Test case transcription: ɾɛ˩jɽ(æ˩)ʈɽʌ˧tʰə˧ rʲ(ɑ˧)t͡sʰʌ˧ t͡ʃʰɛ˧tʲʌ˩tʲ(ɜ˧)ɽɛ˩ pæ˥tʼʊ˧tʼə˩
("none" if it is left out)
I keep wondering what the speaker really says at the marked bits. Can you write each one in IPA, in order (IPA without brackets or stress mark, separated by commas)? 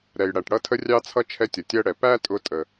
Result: æ˩, ɑ˧, ɜ˧